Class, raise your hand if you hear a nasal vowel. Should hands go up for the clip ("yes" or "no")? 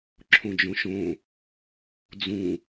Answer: yes